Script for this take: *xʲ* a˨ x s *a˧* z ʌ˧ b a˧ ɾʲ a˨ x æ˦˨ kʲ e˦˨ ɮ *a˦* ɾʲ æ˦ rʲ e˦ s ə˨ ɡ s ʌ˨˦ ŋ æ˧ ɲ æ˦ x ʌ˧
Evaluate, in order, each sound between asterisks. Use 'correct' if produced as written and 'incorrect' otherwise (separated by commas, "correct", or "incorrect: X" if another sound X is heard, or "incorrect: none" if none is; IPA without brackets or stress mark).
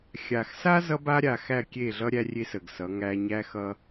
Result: correct, incorrect: a˦, incorrect: ʌ˦